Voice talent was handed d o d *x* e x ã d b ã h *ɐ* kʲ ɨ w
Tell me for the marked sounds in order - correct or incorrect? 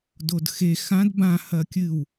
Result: correct, correct

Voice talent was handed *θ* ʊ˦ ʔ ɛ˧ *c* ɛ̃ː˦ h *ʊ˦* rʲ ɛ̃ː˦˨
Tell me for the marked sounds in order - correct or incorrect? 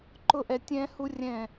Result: incorrect: ǃ, incorrect: tʲ, incorrect: u˦

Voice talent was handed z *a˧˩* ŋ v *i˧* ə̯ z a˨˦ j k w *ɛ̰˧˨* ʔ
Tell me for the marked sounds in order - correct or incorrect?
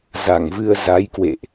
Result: correct, incorrect: ɨ˧, incorrect: ḛ˧˨

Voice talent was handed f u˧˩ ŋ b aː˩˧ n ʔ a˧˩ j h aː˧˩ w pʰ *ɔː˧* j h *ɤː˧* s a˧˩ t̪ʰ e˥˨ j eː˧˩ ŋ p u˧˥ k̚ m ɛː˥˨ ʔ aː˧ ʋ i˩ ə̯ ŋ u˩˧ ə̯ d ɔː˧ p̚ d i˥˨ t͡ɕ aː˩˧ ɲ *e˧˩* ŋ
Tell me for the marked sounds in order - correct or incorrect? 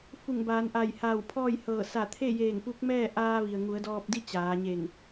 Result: incorrect: ɔː˥˨, incorrect: ɤː˧˩, correct

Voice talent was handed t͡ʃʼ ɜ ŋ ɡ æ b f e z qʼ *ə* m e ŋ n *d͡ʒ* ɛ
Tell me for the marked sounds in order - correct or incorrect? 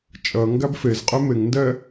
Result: incorrect: ɛ, incorrect: d

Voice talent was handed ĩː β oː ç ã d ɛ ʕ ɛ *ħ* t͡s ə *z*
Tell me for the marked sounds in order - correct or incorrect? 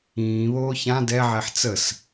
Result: correct, incorrect: s

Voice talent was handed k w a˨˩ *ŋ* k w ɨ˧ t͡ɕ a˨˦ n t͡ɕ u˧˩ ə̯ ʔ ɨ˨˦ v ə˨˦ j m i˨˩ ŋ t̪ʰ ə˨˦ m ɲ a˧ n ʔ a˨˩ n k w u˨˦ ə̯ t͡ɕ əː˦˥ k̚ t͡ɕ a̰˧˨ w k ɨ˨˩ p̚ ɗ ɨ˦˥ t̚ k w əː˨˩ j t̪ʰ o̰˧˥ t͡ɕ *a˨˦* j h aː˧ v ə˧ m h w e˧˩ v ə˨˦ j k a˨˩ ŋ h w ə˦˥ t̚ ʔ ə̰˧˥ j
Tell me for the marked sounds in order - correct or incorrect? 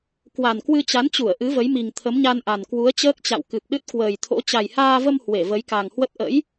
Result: incorrect: n, incorrect: a˨˩

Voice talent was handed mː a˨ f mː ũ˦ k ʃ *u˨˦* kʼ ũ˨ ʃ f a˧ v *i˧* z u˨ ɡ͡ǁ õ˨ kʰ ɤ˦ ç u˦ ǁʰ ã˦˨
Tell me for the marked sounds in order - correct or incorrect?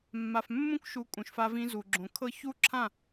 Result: correct, incorrect: ĩ˧

